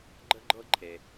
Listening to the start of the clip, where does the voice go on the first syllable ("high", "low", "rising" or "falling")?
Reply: high